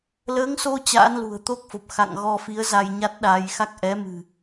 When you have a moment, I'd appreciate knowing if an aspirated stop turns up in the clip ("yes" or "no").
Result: no